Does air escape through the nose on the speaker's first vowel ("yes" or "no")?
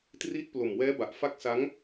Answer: no